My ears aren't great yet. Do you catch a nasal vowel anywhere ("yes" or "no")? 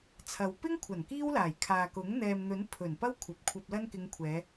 no